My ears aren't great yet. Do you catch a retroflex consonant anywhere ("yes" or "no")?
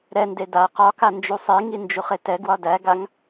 no